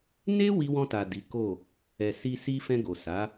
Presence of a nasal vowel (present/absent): present